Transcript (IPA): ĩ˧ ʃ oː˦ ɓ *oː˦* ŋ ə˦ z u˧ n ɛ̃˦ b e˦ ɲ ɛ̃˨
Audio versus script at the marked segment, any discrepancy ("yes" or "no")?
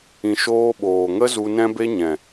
yes